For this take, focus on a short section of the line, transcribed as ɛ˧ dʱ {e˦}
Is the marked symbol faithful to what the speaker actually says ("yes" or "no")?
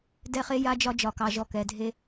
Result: yes